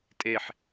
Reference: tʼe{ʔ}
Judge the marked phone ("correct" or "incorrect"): incorrect